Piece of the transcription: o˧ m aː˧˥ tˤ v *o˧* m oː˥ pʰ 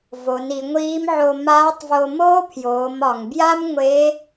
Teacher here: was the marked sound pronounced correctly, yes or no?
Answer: yes